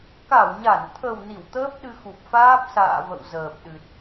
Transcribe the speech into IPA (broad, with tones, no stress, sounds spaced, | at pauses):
k a˧˩ w ɲ a˧˩ n t̪ʰ ə˨˩ w n i˧˩ w t̪ əː˦˥ p̚ ɗ ɨ˧ x u˨˩ p̚ f aː˦˥ p̚ s a̰ː˧˨ v ə̰˧˨ w z əː˨˩ p̚ ɗ ɨ˨˩ t̚